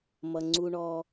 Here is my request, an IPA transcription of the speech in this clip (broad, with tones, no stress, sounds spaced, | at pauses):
m ʌ˨ ŋ͡ǀ u˧ ɳ ɔ˧